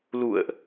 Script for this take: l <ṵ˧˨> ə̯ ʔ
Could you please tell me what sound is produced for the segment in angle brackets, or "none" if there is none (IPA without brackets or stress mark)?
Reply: ṵ˧˨